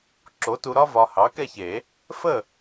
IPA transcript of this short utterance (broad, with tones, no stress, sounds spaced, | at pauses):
ǁ o˨˥ t u˧ ɾ ɒ˥ v ɒ˧ h ɑ˨˥ k ɛ˥˨ ç e˨˩˦ | f ə˥˨